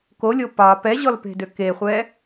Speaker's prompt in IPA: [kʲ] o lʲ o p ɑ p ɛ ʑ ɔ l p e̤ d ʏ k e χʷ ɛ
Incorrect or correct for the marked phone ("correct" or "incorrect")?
incorrect